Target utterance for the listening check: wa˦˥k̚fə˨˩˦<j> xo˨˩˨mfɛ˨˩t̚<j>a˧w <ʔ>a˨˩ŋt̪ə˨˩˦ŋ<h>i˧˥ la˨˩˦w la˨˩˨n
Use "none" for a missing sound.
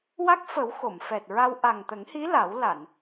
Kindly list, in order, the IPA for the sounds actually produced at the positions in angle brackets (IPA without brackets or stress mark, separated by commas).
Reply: w, ɹ, ʔ, h